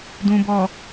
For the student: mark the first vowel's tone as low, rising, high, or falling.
low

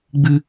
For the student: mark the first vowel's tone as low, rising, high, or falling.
high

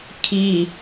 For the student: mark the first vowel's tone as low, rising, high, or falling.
low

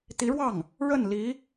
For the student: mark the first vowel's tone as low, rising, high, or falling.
rising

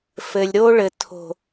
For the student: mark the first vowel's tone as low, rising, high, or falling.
low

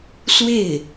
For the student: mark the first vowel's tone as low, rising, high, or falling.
falling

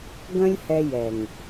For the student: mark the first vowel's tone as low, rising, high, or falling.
high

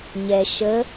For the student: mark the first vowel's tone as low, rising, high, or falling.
low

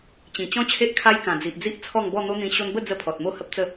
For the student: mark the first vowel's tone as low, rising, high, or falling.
low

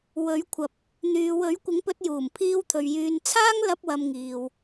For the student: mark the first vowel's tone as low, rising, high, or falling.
rising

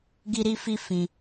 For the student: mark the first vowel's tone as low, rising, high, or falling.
high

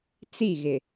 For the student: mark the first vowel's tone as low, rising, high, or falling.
falling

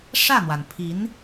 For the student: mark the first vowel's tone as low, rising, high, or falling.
falling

